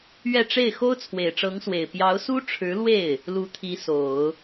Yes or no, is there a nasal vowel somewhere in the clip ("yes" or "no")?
no